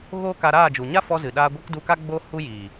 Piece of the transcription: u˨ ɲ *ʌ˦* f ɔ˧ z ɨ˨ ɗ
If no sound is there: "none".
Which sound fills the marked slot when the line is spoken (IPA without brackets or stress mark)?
a˦